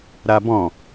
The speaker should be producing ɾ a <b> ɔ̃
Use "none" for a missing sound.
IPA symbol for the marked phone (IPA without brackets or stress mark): b